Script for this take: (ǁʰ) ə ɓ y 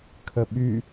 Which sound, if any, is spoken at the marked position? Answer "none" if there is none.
kʰ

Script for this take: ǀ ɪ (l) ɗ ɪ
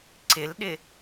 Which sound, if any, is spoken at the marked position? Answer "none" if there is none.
l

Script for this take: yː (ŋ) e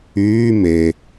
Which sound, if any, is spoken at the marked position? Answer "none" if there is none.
m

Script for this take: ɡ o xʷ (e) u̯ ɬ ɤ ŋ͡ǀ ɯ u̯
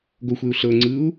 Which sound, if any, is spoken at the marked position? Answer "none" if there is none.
e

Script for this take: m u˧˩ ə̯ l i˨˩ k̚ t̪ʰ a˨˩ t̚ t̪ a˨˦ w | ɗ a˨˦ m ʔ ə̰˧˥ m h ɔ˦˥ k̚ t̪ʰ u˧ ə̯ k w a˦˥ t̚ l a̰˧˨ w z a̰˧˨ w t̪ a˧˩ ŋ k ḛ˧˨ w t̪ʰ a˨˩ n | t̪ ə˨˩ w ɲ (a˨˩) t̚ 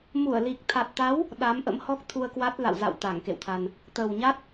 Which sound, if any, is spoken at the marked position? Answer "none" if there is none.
a˦˥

